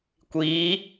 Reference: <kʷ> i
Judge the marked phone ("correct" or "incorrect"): correct